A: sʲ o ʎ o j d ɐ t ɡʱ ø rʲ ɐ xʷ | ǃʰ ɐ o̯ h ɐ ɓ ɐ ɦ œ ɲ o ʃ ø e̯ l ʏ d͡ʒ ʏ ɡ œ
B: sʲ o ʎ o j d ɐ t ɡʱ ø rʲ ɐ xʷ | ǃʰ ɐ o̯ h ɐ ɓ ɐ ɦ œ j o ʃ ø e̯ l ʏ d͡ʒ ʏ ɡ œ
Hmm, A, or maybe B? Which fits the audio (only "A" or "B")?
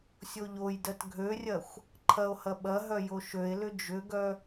B